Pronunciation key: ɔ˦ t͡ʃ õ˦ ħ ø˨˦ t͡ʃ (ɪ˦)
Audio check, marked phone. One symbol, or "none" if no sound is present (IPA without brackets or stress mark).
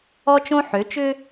ʏ˦